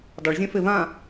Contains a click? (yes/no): no